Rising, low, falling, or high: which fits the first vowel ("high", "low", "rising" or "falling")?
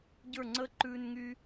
falling